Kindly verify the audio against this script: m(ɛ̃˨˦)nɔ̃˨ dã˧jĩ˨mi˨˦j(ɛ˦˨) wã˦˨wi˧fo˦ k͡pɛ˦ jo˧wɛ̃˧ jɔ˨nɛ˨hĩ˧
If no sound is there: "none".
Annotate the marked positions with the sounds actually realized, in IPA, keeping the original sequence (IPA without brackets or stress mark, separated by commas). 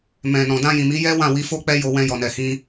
ɛ̃˨, ɛ˦